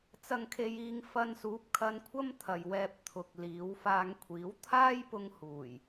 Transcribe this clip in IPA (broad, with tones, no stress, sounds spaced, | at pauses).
t͡s ɐ˨ ŋ kʰ e˨ j iː˨ ŋ f ɐ˧ n s uː˨˥ p̚ kʰ ɐ˧ n kʷʰ ɐ˥ m t̪ʰ ɐ˨ j w ɛː˧ p̚ t̪ʰ ʊ˨ k̚ l iː˨˧ w f aː˧ ŋ kʷʰ iː˨˥ w t̪ʰ aː˥ j p ʊ˧ ŋ h uː˨˩ j